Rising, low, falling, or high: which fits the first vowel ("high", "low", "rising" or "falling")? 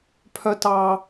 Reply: high